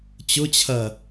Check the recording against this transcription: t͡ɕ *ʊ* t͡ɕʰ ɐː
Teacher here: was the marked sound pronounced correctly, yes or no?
yes